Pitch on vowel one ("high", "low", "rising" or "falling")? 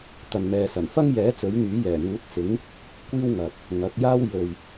low